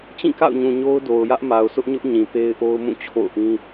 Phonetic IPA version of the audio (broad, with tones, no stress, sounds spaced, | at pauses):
t͡ɕ ĩ˦˨ k a̰˦˨ ʊ̯ ɲ ũ˨ ɲ o˦ ʊ̯ d o˨ ʊ̯ j ä˦ ʔ m a˨ ʊ̯ sʰ ʊ˦ ʔ ɲ ʊ˦ ʔ ɲ ĩ˨ p e˦ ɪ̯ ʔ o˦ ʊ̯ m ũ˦˨ t͡ɕʰ o̰˦˨ ʊ̯ ʔ ĩ˦